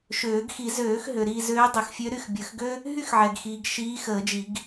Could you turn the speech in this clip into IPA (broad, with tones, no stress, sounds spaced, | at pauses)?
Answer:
ʃ øː˨˩˦ ɡ x i˨˩˦ z øː˨˩˦ x ɦ ø˨ ɾ iː˦˨ z øː˧˥ dˤ ø˨˩˦ x fʲ ø˧˥ ɾ y˦˨ x bʲ əː˨˩˦ x ɡ ø˥ | ɦ y˥ x ʕ ɛ˨ ɡ x iː˨ ɡ ʃ iː˧˥ x əː˨˩˦ d͡ʒ i˨˩˦ ɡ